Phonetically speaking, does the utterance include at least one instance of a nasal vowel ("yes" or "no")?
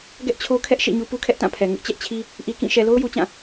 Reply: yes